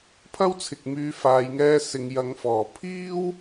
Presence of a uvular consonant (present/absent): absent